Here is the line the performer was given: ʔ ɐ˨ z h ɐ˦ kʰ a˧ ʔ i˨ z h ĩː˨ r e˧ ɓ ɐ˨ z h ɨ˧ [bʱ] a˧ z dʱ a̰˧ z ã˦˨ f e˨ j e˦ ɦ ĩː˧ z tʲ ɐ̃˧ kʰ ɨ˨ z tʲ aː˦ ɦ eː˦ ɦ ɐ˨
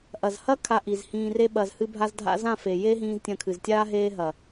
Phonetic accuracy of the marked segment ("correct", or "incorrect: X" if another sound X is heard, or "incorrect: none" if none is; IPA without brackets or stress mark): correct